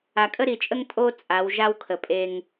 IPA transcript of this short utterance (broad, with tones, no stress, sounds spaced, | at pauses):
a˨ kʼ ə˦ ɾ i˨ t͡ʃʼ ə˦ ŋ tʼ o˦ t͡sʼ a˨˦ w ʒ a˦ w kʰ ə˨ pʼ e˦ ŋ